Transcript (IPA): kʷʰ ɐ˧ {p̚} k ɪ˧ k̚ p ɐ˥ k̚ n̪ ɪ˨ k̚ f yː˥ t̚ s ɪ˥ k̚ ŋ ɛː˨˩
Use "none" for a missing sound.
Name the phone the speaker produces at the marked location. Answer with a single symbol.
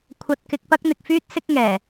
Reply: t̚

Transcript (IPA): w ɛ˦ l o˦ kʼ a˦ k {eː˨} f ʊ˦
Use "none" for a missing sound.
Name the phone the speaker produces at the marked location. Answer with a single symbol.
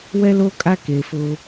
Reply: e˨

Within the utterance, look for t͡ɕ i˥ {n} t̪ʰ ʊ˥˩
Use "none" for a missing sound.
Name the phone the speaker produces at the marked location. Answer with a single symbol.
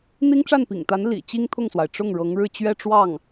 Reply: ŋ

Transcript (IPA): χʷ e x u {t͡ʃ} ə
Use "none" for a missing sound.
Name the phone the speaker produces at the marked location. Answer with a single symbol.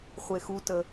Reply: t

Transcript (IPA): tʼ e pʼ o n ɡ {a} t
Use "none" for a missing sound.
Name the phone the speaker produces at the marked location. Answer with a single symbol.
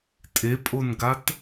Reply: a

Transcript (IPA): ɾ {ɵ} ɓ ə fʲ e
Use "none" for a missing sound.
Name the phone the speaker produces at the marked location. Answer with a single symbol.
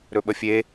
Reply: ɵ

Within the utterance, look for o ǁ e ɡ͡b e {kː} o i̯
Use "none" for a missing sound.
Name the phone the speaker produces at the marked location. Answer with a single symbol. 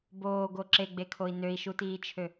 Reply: kʰ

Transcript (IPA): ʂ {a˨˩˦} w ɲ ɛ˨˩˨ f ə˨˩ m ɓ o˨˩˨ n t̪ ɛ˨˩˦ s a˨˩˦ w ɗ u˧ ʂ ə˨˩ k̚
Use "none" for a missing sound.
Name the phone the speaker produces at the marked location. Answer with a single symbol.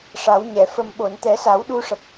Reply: a˨˩˦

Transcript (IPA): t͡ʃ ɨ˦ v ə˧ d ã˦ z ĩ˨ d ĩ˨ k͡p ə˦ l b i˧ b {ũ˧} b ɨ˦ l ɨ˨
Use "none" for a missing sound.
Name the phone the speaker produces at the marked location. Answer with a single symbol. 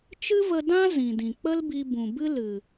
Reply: ũ˨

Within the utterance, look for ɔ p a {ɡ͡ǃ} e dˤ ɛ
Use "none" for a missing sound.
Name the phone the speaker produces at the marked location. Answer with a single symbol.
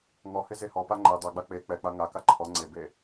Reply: ŋ͡ǃ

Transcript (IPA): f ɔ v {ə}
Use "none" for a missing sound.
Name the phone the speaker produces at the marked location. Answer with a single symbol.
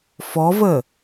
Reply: ə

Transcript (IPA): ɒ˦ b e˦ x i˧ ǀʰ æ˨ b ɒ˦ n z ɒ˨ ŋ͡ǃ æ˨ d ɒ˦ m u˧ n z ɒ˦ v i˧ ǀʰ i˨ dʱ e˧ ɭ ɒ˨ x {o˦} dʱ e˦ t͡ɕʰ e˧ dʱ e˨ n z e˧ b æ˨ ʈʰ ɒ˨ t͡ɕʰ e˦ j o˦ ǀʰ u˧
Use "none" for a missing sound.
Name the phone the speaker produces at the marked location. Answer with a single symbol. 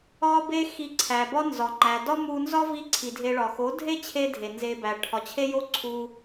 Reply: o˨˦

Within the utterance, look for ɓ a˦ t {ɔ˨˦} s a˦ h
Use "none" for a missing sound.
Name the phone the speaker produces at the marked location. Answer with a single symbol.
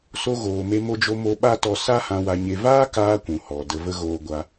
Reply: ɔ˧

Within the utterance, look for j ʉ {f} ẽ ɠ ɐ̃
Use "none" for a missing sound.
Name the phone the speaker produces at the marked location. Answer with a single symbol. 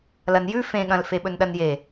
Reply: f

